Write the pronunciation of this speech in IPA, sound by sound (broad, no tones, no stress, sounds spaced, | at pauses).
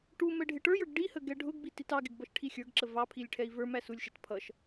ʈ u m ɛ ɖʱ ɪ ʈ ə˞ j ə˞ ɡ ɖ i h ə ɡ ɛ ɖʱ ʊ ɡ b i t i t ɑ ɡ ɪ ɡ b ʌ ʃ ʈʰ i xʲ ə˞ ɡ ǁ ə v ɑ pʰ i lʲ ʈʰ ɛ i̯ v ə˞ m æ s u lʲ ʃ ɛ t pʰ ʌ ʃ